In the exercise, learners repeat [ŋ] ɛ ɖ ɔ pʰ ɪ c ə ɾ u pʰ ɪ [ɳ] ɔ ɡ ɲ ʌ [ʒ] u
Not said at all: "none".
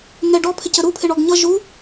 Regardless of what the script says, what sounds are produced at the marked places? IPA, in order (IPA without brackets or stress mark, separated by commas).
ŋ, ɳ, ʒ